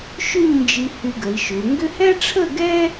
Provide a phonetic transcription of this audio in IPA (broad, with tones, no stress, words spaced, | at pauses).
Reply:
ʃʏ˥˧ɲnd͡ʒi˧ hy˧ɡə˩˧i̯ʃʏ˩˧u̯ ŋɡʏ˥ hɛ˥ʈ͡ʂʰə˥˧ɡɛ˥